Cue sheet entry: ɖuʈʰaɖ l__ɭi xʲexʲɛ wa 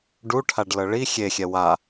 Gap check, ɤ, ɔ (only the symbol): ɤ